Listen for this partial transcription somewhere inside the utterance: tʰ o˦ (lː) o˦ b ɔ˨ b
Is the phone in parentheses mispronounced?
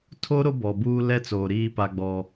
yes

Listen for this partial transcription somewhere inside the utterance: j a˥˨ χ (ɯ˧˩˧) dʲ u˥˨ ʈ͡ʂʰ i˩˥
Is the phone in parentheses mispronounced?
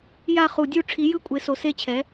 yes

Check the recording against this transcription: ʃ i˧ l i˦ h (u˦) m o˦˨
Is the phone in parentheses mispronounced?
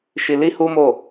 no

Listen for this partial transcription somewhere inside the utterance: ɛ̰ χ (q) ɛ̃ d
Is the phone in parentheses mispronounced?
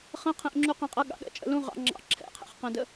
no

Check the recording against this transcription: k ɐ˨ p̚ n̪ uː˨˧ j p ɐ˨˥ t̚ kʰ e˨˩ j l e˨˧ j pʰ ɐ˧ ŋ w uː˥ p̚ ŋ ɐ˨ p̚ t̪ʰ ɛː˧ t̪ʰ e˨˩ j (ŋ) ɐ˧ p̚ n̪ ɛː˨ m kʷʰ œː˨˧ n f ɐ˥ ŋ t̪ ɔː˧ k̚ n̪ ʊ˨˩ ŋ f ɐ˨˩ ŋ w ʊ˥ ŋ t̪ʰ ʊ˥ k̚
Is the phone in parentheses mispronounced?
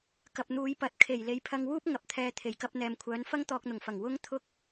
yes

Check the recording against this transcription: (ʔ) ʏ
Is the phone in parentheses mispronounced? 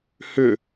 yes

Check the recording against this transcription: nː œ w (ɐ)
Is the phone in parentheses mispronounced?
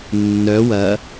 no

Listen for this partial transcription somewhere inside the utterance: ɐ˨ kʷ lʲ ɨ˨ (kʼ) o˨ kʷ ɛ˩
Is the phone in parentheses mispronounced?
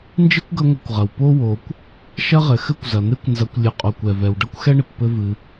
yes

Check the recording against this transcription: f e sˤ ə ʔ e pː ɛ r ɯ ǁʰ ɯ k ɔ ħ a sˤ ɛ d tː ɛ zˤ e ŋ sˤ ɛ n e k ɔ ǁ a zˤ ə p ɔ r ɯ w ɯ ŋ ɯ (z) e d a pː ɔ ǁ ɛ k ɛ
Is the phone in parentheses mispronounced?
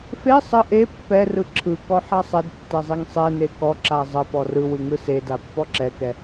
yes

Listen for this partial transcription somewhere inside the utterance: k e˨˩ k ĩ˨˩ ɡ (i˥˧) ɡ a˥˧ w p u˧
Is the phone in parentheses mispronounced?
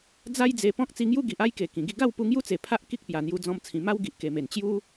no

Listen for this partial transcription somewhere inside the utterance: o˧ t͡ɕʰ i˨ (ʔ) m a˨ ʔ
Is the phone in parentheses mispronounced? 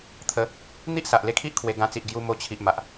no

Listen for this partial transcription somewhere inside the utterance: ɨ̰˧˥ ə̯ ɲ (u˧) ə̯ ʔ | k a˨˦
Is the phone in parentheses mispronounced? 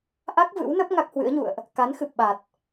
yes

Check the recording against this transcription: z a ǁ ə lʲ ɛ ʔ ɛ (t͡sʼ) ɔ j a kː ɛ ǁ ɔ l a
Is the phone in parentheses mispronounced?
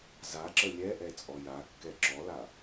no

